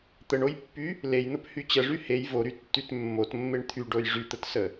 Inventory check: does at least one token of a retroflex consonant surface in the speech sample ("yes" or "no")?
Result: yes